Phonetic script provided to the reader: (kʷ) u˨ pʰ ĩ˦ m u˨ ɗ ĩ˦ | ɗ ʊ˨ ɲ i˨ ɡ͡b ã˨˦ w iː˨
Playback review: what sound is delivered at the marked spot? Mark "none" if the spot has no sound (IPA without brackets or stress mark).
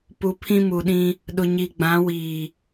p